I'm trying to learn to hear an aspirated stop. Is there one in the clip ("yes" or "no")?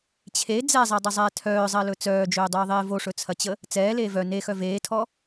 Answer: yes